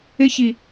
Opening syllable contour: high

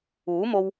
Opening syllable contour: rising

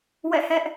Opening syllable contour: falling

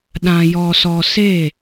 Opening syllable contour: low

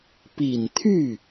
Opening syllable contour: low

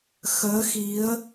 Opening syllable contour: rising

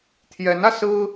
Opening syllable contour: rising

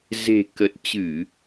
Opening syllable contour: low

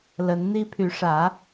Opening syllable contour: rising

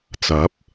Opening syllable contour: rising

